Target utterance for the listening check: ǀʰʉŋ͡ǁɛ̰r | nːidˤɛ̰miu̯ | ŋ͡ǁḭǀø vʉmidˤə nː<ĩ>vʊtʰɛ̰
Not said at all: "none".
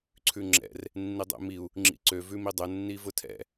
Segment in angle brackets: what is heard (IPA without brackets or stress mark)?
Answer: i